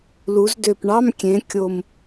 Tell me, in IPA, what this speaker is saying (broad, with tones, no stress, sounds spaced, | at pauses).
l u˩˧ z d ø˨˩ p ɳ ɑ˧˥˧ m kʲ ẽ˩˧ kʲ o˨˩ m